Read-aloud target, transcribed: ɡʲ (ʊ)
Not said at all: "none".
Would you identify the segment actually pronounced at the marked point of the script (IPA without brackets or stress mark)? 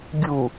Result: u